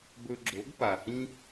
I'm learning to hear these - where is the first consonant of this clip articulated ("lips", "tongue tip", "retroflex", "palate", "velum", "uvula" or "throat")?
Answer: lips